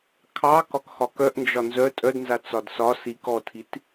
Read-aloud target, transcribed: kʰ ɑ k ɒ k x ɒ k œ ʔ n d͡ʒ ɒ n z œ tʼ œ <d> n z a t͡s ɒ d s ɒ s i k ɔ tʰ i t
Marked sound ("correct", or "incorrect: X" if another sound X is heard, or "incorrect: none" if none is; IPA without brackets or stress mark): correct